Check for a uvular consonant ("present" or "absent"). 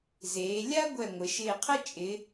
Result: present